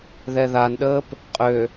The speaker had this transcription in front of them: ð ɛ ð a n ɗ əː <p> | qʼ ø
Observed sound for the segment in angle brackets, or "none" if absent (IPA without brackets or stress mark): p